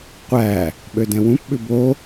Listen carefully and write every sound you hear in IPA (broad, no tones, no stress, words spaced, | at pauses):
qʷæ | ɓødɛ̃wũp ɓʉbo